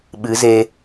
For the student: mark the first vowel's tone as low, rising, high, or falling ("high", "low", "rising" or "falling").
rising